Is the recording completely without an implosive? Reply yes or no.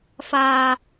yes